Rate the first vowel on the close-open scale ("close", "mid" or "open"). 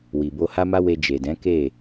close